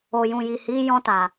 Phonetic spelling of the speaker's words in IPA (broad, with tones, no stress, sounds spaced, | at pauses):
o˨ j ũ˨ j i˨ h i˨˦ j ɔ̃˧ t a˨